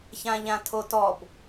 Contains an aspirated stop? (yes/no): yes